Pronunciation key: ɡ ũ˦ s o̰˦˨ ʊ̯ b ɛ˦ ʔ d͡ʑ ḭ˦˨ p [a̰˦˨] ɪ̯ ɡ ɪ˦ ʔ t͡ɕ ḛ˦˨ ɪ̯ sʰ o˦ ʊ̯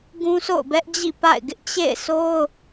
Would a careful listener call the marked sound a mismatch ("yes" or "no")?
no